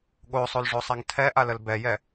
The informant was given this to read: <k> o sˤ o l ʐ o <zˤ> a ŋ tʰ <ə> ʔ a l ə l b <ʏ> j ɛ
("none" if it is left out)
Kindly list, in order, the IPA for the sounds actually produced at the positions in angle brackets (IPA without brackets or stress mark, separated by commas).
ɠ, sˤ, ɛ, ɛ